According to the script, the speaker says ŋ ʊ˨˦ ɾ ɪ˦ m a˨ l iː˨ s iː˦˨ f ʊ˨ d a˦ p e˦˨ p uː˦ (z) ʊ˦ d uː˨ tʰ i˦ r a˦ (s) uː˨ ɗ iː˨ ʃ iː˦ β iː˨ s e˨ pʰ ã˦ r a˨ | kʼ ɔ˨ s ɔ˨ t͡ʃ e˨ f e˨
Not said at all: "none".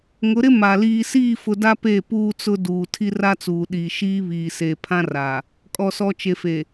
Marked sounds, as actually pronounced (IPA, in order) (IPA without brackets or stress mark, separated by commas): t͡s, t͡s